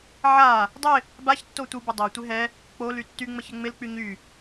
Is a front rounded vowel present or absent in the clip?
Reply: present